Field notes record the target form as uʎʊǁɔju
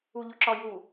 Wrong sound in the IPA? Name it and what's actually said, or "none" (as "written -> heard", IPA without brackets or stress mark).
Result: none